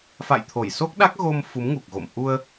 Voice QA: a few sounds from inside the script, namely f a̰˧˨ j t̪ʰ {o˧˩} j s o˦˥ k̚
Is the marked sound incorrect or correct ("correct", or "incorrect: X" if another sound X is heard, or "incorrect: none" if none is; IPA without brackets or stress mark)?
correct